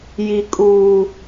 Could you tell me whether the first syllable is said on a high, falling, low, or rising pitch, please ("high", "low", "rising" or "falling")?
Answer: high